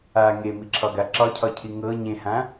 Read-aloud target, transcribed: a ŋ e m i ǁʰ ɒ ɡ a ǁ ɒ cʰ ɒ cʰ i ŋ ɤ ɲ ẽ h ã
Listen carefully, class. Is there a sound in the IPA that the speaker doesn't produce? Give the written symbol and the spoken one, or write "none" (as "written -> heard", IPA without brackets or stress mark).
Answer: none